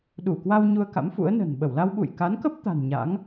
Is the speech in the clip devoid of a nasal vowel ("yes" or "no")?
yes